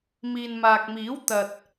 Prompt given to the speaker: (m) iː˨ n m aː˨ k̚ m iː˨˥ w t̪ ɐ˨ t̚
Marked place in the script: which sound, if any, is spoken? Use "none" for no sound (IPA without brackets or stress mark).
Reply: m